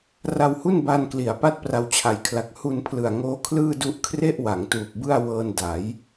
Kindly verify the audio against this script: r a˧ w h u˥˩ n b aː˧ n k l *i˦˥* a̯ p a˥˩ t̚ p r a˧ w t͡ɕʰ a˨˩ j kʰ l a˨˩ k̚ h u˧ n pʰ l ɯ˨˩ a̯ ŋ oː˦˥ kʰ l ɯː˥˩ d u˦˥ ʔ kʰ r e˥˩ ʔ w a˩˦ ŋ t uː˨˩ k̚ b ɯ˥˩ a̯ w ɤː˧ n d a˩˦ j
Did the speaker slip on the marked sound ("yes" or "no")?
yes